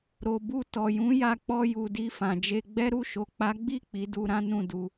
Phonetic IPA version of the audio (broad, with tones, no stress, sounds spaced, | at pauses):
ɾ o˨ b u˧ t ɔ˨ j ũ˨˦ j a˧ k͡p ɔ˧ j u˨ d i˧ f ã˨ d͡ʒ e˧ ɡ͡b ɛ˦ ɾ u˦˨ ʃ o˨ k͡p a˨˦ ɡ͡b i˦˨ k͡p i˨˦ d u˧ ɾ ã˦ n ũ˦˨ d u˧